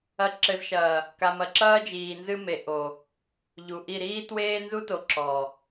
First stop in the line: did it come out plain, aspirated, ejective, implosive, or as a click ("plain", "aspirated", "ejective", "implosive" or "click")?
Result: click